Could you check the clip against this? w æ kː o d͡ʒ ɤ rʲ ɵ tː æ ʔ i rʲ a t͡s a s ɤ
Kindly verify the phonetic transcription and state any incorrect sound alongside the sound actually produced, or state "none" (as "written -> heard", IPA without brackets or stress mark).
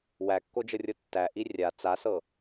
ɵ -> ɤ